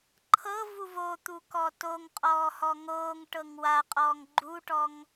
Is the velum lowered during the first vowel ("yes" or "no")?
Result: no